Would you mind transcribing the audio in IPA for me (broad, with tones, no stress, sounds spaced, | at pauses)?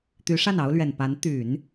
t̪ y˧˥ ʂ a˥˩ n ɑ˥ ʊ̯ l ɥ ɛ˨˩ n p a˧˥ n t̪ y˨˩˦ n